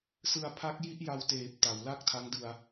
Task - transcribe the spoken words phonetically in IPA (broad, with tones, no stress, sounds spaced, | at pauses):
s ɯ˧ a̯ pʰ a˦˥ k̚ j i˥˩ ʔ j a˧ w t eː˨˩ p̚ t a˩˦ w l a˥˩ k̚ tʰ a˦˥ ŋ d ɯ˧ a̯